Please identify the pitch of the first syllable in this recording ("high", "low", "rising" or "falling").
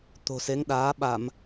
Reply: low